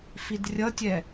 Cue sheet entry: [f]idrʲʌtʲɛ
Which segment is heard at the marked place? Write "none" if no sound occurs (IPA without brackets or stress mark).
f